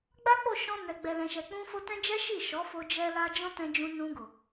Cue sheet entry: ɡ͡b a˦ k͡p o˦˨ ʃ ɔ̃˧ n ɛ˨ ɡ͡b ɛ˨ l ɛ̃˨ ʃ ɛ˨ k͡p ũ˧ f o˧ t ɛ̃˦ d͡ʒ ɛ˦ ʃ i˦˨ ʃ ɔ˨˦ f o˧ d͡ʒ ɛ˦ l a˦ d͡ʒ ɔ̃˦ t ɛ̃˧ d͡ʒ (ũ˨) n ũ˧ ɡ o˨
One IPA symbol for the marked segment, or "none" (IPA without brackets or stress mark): ũ˧